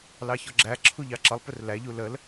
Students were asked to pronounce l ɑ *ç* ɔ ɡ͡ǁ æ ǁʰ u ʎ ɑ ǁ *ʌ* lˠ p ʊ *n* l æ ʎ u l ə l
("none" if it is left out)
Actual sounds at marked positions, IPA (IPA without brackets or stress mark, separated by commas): ç, ʌ, r